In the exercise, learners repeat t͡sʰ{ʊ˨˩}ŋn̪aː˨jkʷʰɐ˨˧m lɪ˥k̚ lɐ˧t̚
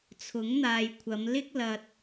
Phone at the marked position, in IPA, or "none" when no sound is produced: ʊ˨˥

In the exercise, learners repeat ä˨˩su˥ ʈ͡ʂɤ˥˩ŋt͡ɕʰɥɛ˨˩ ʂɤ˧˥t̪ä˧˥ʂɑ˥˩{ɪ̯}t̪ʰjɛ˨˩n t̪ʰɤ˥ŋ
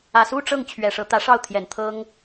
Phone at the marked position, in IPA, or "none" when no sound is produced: ʊ̯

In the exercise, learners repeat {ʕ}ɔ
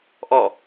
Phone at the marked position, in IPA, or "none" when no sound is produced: ʔ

